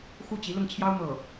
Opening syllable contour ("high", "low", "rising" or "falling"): falling